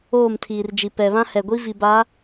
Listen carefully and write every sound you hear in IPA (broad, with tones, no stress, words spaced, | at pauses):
oː˦˨mtʰiː˨rd͡ʒi˨ pɛ˨βã˦ hɛ˨ɡʷi˦ vi˨ba˨˦